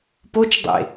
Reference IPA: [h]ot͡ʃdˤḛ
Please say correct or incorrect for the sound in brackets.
incorrect